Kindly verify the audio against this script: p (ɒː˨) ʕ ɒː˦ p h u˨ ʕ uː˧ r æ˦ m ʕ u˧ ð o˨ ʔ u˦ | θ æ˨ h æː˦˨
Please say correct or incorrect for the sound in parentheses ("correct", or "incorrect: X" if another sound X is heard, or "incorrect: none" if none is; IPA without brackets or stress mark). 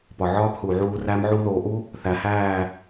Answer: incorrect: ɒ˨